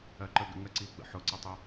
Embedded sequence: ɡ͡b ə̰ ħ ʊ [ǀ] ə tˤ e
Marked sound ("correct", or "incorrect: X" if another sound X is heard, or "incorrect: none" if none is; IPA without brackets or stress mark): correct